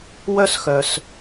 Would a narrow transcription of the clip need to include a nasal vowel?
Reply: no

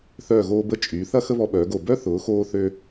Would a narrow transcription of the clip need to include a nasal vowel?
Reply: no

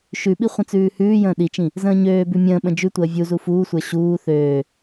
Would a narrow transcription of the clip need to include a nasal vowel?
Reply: yes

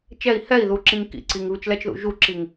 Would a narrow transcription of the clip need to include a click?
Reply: yes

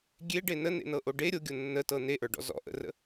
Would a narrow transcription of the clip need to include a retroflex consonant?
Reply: yes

